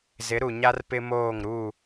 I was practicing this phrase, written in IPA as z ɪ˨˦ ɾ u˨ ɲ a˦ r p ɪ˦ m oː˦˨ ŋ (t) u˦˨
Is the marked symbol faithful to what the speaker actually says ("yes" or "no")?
no